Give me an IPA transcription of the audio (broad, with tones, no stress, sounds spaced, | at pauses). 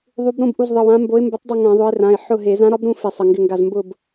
ðˤ u˨˦ b ɾ õ˦˨ b ʔ u˩˧˩ z ðˤ ə˩˧˩ w ã˨˦ m b o˨˦ ɪ̯ m b ʊ˨˦ tˤ dˤ ə˦˨ ŋ ã˧˩˧ ðˤ ʊ˨˦ ɪ̯ r ã˩˧˩ ɪ̯ ħ ʊ˦˨ ɦ e˧˩˧ z ã˨˦ ɾ ɒ˨˦ b ɾ ũ˦˨ f ɪ˧˩˧ sˤ ə˩˧˩ ŋ ɡ ɪ˦˨ ŋ ɡ a˦˨ z m b ʊ˦˨ b